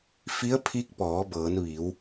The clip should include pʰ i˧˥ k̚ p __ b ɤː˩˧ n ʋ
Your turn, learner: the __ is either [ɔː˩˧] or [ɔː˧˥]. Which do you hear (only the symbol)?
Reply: ɔː˩˧